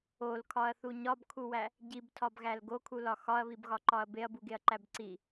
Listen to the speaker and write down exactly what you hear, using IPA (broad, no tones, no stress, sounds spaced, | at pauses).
o l kʰ ɒ ɐ̯ θ u ɲ ɒ b kʰ u w æ | ɟ i b tʰ ɒ b ɣ æ l ɡ o kʰ u l ɒ x ɒ ɐ̯ β i b ɣ ɒ ǃ ɒ ɐ̯ b e ɐ̯ b u ɡ e ɐ̯ ǃ æ b ǀ i